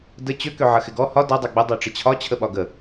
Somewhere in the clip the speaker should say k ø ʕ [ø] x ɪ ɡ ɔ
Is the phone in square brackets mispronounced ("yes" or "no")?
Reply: yes